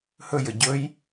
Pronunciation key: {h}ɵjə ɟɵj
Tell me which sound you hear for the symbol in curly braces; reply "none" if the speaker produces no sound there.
h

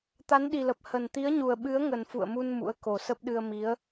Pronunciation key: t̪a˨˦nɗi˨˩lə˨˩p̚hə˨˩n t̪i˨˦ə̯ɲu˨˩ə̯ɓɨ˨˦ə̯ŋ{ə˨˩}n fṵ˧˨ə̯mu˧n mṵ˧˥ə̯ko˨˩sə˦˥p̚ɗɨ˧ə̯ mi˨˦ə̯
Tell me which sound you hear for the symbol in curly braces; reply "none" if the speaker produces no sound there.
ə˨˩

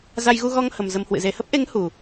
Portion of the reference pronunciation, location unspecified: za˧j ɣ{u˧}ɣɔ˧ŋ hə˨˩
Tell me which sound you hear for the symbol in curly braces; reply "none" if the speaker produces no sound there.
u˧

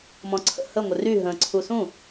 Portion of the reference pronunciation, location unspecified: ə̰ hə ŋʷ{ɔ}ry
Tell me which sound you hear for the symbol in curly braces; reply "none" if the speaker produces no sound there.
ə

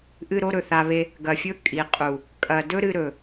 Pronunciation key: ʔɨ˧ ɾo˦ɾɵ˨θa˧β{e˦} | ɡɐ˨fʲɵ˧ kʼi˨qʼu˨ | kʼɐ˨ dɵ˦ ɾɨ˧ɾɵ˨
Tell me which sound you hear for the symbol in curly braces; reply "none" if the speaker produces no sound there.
e˦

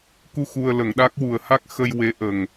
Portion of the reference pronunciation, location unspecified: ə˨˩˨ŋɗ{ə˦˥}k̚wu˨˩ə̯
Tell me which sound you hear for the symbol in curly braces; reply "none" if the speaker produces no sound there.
a˦˥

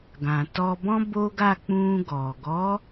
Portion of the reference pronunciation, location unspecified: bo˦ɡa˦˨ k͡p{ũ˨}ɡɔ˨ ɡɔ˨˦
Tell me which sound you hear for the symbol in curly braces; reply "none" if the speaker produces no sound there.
ũ˧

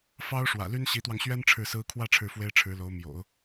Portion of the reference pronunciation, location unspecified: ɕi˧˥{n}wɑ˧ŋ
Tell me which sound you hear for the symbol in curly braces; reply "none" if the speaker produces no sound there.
t̪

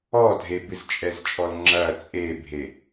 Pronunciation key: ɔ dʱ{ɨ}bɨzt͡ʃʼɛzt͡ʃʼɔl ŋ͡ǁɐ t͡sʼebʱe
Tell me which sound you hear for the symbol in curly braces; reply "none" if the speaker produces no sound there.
e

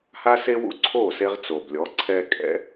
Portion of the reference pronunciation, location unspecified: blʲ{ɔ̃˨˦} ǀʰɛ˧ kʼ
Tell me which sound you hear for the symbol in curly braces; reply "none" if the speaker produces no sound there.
ɔ˨˦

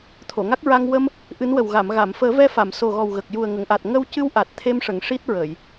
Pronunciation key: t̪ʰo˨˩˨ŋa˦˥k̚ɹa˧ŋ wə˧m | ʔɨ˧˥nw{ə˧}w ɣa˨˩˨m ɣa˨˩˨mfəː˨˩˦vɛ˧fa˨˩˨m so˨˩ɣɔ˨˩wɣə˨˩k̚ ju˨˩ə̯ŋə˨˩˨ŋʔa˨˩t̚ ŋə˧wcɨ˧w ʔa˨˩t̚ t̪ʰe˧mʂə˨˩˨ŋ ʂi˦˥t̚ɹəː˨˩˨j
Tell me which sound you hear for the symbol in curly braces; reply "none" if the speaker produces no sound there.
ə˨˩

